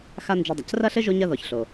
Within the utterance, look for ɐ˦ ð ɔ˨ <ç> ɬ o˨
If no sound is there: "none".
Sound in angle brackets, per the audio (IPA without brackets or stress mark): ç